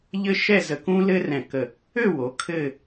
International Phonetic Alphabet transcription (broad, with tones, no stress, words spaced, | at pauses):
ʎɘ˥ʃɛ˥˧zə˧ kũ˥lɘ˥rɛ̃˧˩kə˧˩ | ø˥˧wo˩˧ kʰɘ˥˧